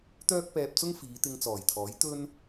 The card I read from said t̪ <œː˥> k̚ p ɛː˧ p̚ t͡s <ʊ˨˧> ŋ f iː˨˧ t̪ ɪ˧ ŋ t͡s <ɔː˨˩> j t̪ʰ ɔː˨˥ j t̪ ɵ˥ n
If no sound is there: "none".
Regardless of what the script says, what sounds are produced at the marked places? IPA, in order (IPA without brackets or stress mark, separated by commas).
œː˥, ʊ˥, ɔː˨˩